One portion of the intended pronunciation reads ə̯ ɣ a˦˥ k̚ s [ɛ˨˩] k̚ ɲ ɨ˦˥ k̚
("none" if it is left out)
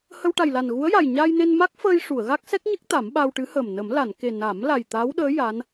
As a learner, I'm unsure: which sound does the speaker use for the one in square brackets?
ɛ˦˥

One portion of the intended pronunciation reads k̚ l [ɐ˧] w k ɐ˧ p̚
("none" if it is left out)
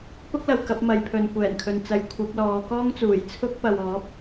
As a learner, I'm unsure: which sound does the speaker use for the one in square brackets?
ɐ˨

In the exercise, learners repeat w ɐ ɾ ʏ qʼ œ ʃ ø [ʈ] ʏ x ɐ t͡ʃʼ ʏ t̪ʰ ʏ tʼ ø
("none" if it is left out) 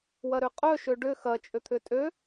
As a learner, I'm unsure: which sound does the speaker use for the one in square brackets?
ɖ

